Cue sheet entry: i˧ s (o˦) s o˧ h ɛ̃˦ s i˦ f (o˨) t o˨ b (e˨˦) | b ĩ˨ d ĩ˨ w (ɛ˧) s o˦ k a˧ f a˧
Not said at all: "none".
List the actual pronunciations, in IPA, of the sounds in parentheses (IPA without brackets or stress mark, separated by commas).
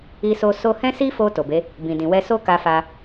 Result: o˧, o˧, e˨˦, ɛ˧